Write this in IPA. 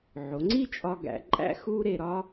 ʕ o˩˧ ŋ͡ǀ i˥ t͡ʃʼ ɒ˧ ɡ æ̰˧ ǃʼ æ̰˥ x u˥ ɾ e˧ ɾ ɒ˥

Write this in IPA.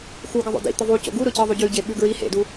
x u ɡ ə ðˤ o̰ d ḭ t̪ ə ðˤ u c o̰ ɡ u ɾ ʊ c ə ðˤ u ɟ ʉ ɟ e ɓ ʉ ɡ ɹ i h ḛ d u

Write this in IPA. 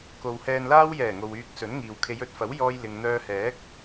k o˨ w h ɛː˨ n l aː˧ w j ɛː˨˩ ŋ o˨ w yː˧ k̚ s ɵ˨˥ n ŋ iː˨ w kʰ e˨˧ j ɵ˧ t̚ f ɐ˨˥ w j ɔː˧ j l ɪ˨ ŋ n̪ œː˧ h ɛː˨˥ k̚

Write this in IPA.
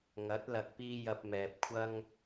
ŋ ɐ˨˥ t̚ l ɐ˨ k̚ p iː˧ j ɐ˧ p̚ m ɛː˨ p̚ kʷʰ ɐ˥ ŋ

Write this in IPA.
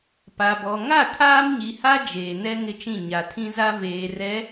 p a˨ b ɔ˨ ŋ a˦˨ tʰ aː˦ m ɲ i˨ h a˦ d͡ʒ eː˨ n ɛ˦ ŋ ɪ˦ t͡ʃ ĩ˦˨ ɲ a˨ tʰ ĩ˦ z a˦ v eː˨ r ɛ˨˦

